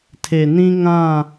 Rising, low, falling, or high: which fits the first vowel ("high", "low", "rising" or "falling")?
low